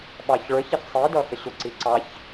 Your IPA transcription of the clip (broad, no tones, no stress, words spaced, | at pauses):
ɓɑçɭə˞çɪç sˤidʌ xəɕʊǀi ǀɑç